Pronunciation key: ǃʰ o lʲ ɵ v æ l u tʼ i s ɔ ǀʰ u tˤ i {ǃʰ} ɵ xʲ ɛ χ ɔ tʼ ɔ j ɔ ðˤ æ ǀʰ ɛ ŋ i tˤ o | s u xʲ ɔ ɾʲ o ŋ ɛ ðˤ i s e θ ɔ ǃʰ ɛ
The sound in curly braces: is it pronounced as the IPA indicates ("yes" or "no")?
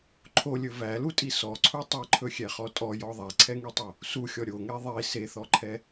yes